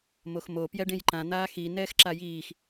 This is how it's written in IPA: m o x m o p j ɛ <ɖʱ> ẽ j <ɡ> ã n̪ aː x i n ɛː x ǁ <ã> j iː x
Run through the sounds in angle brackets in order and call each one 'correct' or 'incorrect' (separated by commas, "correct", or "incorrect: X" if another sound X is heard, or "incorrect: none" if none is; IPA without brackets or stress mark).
incorrect: ɖ, incorrect: ǃ, incorrect: a